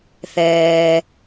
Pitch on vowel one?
low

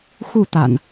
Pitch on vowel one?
falling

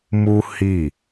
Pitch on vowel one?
high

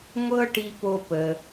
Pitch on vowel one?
high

